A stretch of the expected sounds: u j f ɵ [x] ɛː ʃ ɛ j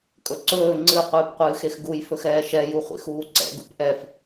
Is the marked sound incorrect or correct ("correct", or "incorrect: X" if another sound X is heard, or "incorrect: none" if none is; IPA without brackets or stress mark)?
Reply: correct